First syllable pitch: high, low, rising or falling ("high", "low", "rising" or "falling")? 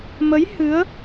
rising